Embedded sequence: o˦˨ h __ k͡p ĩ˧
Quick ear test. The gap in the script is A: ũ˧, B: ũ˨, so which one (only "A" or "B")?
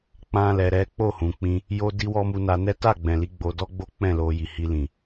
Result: B